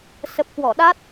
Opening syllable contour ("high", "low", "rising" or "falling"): low